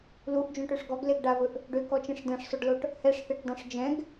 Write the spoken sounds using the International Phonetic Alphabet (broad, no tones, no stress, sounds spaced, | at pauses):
l u ʔ d͡ʒ õ ʈ ø ʂ ɡ ɔ ɡ l e ɡ ɖ a v ɵ ʔ | ɖ ø k ɔ t͡ʃ ẽ ʂ d ɛ̃ ʂ sˤ ʏ ɖ l o ʈ | h ɛ ʂ θ e ʈ dˤ õ ʂ d͡ʒ ɛ̃ ɡ